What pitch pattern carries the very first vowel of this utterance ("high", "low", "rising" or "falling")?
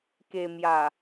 low